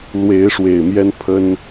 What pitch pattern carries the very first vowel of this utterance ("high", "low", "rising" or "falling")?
rising